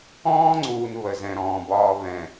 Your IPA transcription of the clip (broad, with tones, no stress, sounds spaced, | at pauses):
ɔ̃ː˦ ŋ͡ǀ uː˨ n β ə˨ z ɛ̃˨ ɾ ɔ̃ː˨ b ɒː˦ β ɛ̃˨